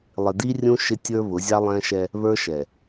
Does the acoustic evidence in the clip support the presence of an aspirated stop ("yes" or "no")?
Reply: no